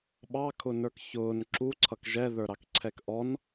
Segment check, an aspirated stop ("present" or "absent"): present